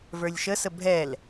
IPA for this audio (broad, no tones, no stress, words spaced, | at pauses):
və˞lʲʃəsə bʱɛl